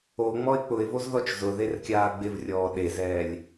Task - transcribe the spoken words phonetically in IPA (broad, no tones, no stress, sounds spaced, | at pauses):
o ŋ͡m ɔ ɪ̯ k͡p ʊ ɪ̯ v o z ð ɔ t͡ʃ z ʊ ð e r kʲ aː ɡ͡b ɪ v rʲ ɔː ɗ e z ɛː lʲ